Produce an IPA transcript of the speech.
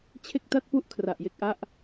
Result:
t͡ɕʰ e˥˩ k̚ t a˥˩ t̚ p u˥˩ ʔ kʰ r a˨˩ ʔ j e˥˩ k̚ ʔ a˥˩ ʔ

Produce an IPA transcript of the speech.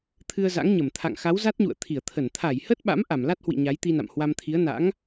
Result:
t̪ʰ ɨ˧ ə̯ z a̰˧˥ ŋ ɲ ə˧˩ m t̪ʰ a̰˧˨ ŋ x a˨˦ w z a˦˥ t̚ ɲ ṵ˧˨ ə̯ t̪ʰ i˧˩ ə̯ t̪ʰ ə˧˩ n t̪ʰ a˧˩ j h ə˦˥ t̚ ɓ a̰˧˥ m ʔ a˧˩ m l a˦˥ t̚ h w ḭ˧˨ ɲ a˨˦ j t̪ i˧ n a̰˧˨ m h w a˧ m t̪ʰ i˨˦ ə̯ n a̰˧˥ ŋ

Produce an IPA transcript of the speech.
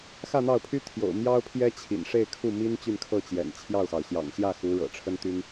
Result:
x ä˥˧ n̪ ɑ˥˩ ʊ̯ pʰ y˥ t̪ʰ j o̰˨˩ ʊ̯ m j ɑ˥ ʊ̯ pʰ j ɛ˥ t͡ɕʰ ḭ˨˩ n ʂ e˥˧ ɪ̯ kʰ u˥˩ m i˥ n t͡ɕ y˥˧ n kʰ ɤ˥˩ t͡ɕ j ɛ̰˨˩ n t͡ɕʰ j ɑ˥˩ ʊ̯ x ɑ˩ ʊ̯ ɕ j ɑ̰˨˩ ŋ ɕ j ä˥˩ x u˧˥ ɻ ɤ̰˨˩ ʈ͡ʂʰ ə˥ n t̪ y˥ n

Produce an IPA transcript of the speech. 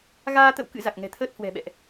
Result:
ɣ aː˧ t̪ ə̰˧˨ w k ɨ̰˧˨ z a˨˩ k̚ ŋ ɛ̤˨˩ t̪ʰ əː˦˥ t̚ h w ɛ̤˨˩ ɓ ɛ̰˧˨ ʔ

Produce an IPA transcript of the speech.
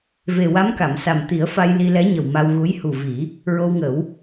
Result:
v e˨˩ w a˧˥ m k a˨˩˨ m s a˨˩ m t̪ i˨˩˦ ə̯ f a˧ j l i˧ l ɛ˧˥ ɲ ə˨˩ w m a˧ w ɣ u˧˥ j h u˨˩ v i˨˩˦ | ɹ o˧ w ŋ ə˨˩˦ w

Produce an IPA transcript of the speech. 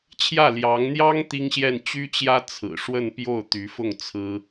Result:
t͡ɕʰ j ä˥˩ l j ɑ˧˥ ŋ n̪ j ɑ˥ ŋ t̪ i˥ ŋ ɕ j ɛ˥˩ n t͡ɕ y˥ t͡ɕ j ä˥ t͡sʰ ɹ̩˨˩ ʂ w ə˥˧ n p j o˥˩ ʊ̯ t̪ y˧˥ f ʊ˥˩ ŋ t͡sʰ ɹ̩˥

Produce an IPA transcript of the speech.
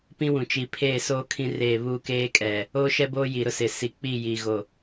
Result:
p ĩ˦ w ũ˨ t͡ʃ i˨ pʰ eː˦˨ s oː˦ kʰ ĩ˦ r eː˦˨ β uː˦ k eː˦ kʼ ɛ˨ | oː˦ ʃ ɛ˦ b oː˦ j i˨ ɾ ʊ˦ s ɪ˨ s i˨ k͡p i˦˨ j i˨ ɣ o˨

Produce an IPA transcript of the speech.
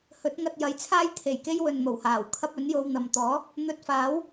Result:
h ɵ˨˥ t̚ ŋ ɐ˧ t̚ j ɐ˨˥ j t͡sʰ aː˥ j t̪ʰ e˨˩ j k e˥ j w ɵ˨ n m o˨˩ w h aː˨˩ w kʰ ɐ˥ p̚ ɵ˨˥ n j o˧ w n̪ ɐ˨ m t̪ ɔː˨˥ | n̪ ɵ˧ t̚ f aː˨˥ w

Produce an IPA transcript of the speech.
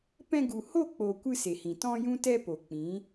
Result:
p ɛ̃˧ ɡ u˨ h o˦˨ k͡p oː˨ kʷ ɨ˧ s e˨ h ĩ˨ t ɔ̃˦ j ũ˦ t ɛ˦ p o˨ k͡p ĩ˨˦

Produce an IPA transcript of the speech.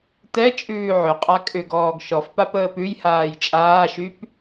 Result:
t ɛ t͡ʃʼ ʉː ʕ ʏ qʼ a kʼ ʏ ɡ ɔː ɡ ʃ ɔ f p a p əː p ʉ j h aː j t͡ʃʼ aː ʃ y p

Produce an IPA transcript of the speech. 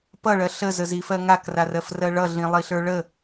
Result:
p ʌ ɭ ɜ ɬ ə z ə z i f ɜ ŋ a k r a r ɜ f r ɜ ɭ ʌ ɮ ĩ lˠ i ɬ ə˞ ɭ ə

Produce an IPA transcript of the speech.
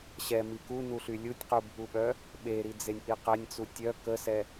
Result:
ɕ ɛ m i k u n u ɬ y lʲ u tʲ q u bʱ u ɓ œ | ɓ e ɾ i d͡z e nʲ ʔ i q ɛ nʲ t͡s u tʲ œ k ə s ɛ

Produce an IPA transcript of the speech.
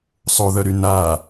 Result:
sˤ o ð œ ɾ y n a

